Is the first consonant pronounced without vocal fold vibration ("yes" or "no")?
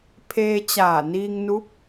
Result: yes